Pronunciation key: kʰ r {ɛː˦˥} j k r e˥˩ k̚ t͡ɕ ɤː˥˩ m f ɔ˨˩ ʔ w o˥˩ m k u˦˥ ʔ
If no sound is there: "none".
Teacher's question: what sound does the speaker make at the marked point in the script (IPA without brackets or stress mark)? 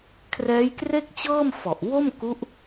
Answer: ɛː˦˥